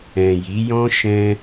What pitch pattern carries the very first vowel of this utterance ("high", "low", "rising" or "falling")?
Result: low